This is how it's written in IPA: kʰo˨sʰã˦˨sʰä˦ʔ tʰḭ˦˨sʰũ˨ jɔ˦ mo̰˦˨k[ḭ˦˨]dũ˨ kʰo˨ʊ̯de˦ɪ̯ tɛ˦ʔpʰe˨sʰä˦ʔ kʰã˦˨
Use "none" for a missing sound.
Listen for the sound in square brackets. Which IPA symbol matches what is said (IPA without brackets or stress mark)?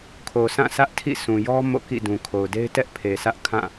ḭ˦˨